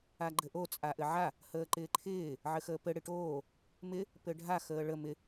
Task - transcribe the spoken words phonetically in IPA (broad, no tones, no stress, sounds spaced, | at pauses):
a ɡ͡ǃ ɘ ʔ o t͡sʼ a ʔ ɘ ʕ a | h əː ǃ ɪː ǃʰ ɪː | ʕ ɘ x əː p ɘ ɽ ɪ ʈ oː | m ɪ | p ɘ ɖʱ a x əː ɭ ə m ɪ